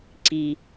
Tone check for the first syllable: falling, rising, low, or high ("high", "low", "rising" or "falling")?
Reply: low